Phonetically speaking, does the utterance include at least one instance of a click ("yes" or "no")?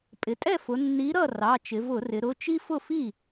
no